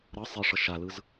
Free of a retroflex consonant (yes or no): no